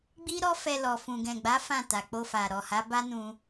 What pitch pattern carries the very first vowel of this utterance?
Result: high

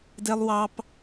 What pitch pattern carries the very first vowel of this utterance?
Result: high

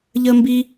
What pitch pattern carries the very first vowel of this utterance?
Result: high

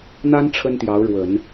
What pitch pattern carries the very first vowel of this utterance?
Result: high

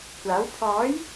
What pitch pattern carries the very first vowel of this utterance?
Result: rising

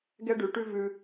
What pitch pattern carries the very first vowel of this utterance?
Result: high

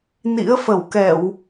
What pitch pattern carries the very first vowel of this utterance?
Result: rising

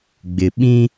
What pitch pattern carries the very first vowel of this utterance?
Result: low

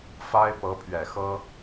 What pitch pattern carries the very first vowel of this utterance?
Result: high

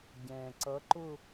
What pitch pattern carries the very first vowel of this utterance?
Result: low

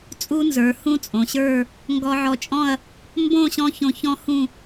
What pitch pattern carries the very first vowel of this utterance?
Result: high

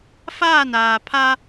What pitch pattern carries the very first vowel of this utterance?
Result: falling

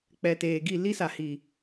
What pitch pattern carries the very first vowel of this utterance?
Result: low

